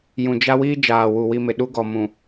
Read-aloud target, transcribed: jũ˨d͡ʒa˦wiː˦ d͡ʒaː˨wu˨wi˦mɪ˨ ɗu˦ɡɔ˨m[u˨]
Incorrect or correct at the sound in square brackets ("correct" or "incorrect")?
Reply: incorrect